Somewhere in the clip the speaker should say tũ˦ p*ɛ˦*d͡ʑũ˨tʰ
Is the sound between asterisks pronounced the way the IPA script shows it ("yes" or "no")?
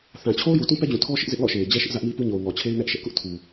yes